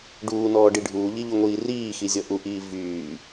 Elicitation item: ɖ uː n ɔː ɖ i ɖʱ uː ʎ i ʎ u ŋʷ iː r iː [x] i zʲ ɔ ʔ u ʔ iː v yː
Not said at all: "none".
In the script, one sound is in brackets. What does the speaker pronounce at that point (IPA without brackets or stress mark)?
x